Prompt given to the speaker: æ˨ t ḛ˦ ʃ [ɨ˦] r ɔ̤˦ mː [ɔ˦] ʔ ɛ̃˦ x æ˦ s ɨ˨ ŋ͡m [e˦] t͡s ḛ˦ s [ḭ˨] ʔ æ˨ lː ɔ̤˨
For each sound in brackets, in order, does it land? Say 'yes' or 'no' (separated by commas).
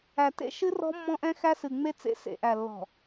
yes, no, yes, no